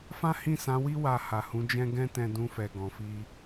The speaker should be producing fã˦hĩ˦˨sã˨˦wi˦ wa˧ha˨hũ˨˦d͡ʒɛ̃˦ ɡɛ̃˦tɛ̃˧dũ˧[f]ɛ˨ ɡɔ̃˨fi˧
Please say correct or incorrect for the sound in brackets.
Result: correct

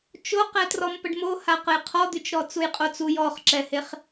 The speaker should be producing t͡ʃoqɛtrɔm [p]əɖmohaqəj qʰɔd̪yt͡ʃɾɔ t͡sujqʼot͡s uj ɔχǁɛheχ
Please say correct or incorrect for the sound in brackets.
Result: correct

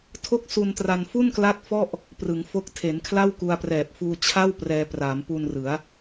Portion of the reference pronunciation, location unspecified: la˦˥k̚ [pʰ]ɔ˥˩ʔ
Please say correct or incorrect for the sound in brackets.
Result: incorrect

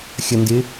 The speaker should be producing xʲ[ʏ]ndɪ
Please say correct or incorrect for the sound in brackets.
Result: incorrect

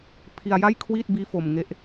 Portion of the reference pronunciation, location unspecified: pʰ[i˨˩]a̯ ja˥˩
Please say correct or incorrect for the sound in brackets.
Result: incorrect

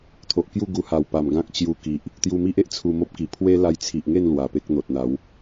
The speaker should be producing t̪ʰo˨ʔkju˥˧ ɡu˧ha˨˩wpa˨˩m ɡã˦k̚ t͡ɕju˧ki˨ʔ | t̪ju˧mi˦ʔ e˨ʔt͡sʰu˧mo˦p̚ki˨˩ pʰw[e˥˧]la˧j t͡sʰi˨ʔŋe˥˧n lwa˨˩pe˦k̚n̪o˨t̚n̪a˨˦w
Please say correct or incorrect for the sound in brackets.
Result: incorrect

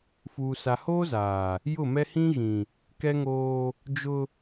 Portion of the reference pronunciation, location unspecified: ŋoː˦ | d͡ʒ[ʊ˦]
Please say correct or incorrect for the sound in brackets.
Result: correct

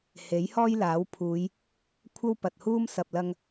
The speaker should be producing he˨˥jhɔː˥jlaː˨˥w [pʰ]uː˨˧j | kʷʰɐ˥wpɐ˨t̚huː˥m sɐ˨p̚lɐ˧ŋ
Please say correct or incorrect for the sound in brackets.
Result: correct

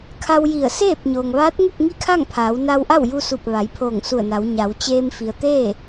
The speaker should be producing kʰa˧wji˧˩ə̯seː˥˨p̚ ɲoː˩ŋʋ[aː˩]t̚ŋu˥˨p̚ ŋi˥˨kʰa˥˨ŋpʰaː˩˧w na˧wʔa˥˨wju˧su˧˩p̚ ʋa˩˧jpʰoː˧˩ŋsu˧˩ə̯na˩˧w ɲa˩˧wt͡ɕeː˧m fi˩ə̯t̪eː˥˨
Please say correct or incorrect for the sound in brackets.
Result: incorrect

